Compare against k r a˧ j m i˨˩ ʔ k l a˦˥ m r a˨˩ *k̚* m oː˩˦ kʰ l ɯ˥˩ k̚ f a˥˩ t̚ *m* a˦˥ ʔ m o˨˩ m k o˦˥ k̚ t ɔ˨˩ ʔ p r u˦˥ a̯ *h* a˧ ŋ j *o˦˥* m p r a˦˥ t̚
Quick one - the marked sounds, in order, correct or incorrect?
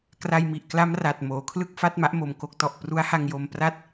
incorrect: t̚, correct, correct, incorrect: o˧

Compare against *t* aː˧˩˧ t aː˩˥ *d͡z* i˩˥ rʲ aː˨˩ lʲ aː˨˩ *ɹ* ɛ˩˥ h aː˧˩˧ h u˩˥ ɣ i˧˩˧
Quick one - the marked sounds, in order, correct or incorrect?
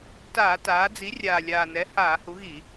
correct, correct, incorrect: n

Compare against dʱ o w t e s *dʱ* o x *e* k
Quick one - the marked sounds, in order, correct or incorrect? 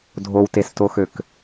incorrect: t, incorrect: ø

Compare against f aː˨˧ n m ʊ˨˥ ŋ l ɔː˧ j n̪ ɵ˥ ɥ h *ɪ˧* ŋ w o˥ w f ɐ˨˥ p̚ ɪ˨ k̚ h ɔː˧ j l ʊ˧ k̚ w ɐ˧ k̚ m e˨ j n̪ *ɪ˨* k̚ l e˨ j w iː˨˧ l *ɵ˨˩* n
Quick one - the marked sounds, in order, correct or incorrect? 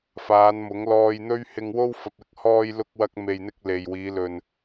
correct, incorrect: ɪ˧, incorrect: ɵ˨

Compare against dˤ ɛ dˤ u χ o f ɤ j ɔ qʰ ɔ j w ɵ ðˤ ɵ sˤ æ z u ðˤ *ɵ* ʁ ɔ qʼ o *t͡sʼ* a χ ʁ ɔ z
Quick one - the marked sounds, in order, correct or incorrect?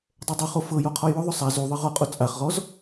incorrect: ɤ, correct

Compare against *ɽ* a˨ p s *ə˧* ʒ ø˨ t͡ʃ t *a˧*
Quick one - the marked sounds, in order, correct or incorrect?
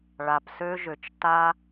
incorrect: ɭ, incorrect: ø˧, correct

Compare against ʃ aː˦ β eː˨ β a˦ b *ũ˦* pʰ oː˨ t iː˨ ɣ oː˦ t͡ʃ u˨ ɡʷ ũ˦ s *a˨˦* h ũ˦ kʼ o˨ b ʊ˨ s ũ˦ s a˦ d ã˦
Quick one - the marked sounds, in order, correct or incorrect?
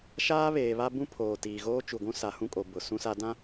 correct, correct

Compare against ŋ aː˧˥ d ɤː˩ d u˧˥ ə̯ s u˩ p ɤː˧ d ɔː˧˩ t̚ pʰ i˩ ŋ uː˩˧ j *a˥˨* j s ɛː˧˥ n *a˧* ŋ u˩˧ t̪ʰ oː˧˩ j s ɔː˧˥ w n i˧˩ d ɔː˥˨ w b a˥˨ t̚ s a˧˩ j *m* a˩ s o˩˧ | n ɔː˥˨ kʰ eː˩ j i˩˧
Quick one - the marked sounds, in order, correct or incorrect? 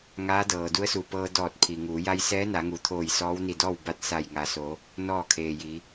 incorrect: a˧, incorrect: a˩˧, incorrect: ŋ

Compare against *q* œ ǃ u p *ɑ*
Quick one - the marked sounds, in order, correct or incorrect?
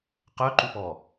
correct, incorrect: ɔ

